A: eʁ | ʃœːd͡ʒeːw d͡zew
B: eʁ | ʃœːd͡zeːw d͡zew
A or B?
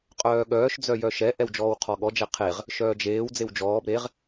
A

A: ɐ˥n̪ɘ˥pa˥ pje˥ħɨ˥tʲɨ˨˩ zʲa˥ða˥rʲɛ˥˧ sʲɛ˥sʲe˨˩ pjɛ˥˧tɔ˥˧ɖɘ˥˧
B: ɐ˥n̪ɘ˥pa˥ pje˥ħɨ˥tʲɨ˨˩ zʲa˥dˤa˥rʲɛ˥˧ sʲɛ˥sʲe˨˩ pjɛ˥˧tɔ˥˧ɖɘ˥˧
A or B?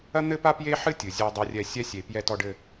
B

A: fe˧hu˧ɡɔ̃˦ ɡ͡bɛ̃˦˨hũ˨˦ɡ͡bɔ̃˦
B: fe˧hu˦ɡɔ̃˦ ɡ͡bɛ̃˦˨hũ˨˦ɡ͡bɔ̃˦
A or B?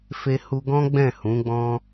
A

